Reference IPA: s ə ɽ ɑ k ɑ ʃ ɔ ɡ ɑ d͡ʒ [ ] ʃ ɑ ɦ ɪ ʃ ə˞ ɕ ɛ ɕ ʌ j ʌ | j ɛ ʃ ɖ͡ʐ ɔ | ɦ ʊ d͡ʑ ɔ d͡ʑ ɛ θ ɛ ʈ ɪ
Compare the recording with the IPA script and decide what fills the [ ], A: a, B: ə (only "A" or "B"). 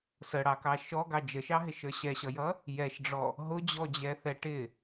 B